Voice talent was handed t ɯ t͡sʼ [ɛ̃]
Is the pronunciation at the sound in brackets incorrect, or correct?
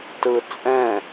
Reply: correct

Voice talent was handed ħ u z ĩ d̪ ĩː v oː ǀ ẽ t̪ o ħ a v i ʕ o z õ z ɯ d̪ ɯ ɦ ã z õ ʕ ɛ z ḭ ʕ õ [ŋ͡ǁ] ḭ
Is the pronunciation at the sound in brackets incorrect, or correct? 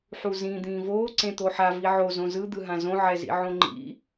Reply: incorrect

